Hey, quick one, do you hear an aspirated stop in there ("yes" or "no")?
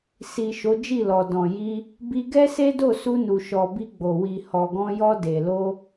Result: no